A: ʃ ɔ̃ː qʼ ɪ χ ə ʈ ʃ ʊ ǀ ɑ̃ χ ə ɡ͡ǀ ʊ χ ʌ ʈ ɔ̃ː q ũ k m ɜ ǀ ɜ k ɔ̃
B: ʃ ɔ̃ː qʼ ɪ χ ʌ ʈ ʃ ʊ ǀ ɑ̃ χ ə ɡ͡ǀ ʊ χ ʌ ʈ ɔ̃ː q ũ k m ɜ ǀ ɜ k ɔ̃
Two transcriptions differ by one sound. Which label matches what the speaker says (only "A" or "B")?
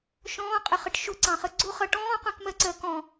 A